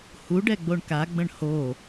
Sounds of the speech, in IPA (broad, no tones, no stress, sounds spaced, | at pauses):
h u ɖ ɛ ɡ͡b o ɳ k a ɡ͡b ə̃ ɳ h o